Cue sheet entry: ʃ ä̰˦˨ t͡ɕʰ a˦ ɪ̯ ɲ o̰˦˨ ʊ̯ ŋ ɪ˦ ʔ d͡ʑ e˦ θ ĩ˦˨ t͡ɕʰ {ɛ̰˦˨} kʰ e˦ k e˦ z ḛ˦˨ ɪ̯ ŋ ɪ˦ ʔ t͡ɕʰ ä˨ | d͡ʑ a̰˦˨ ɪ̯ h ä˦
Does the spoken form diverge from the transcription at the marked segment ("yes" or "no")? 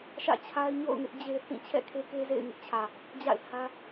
no